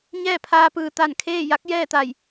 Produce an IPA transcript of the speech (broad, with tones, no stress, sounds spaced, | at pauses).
ɲ ɛː˥˨ pʰ aː˧ p ɯː˩ t̪ a˧˩ n kʰ eː˥˨ j a˧˥ k̚ j ɛː˥˨ t̪ a˧˩ j